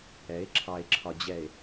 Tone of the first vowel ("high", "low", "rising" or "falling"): rising